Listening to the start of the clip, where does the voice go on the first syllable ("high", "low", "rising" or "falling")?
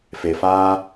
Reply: low